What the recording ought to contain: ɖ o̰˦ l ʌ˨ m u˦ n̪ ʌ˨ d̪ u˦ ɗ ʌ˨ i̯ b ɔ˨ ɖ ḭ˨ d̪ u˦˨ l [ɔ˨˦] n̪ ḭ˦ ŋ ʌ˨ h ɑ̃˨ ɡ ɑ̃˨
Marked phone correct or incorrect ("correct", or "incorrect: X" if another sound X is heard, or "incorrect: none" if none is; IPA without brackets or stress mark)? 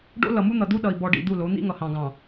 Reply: incorrect: o˨˦